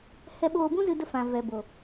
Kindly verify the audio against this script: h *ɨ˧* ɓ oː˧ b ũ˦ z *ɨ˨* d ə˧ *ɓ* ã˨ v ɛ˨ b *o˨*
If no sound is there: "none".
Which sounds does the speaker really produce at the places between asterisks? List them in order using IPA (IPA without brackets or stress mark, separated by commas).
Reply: ɛ˧, ɨ˧, f, o˨